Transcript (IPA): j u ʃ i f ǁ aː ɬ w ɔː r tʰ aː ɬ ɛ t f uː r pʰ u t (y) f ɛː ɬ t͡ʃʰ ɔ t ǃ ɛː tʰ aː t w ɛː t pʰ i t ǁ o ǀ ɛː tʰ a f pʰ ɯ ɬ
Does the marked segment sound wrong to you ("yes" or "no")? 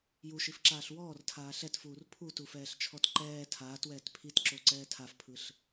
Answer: yes